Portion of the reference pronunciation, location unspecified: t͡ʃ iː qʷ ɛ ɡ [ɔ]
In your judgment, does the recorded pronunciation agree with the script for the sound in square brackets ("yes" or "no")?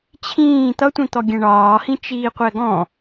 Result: no